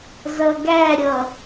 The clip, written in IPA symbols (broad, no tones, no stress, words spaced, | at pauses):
zʌɡæɾʲʌ